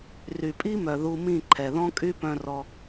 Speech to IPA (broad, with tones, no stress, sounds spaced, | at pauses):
r y˨ pʼ i˦ m œ˨ ð u˧ m ĩ˦˨ ǃʰ ɛ˨ ð ɔ̃˦ kʼ y˦ p œ̃˧ r ɔ˧